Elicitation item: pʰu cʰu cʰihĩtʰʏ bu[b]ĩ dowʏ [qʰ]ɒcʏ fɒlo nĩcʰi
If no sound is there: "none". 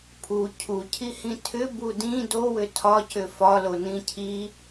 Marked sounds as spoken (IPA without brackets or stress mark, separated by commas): d, tʰ